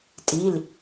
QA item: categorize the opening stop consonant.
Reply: ejective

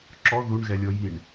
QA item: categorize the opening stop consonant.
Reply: click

